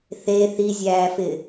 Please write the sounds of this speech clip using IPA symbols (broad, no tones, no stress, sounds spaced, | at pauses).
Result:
θ e θ i zʲ æː f ɪ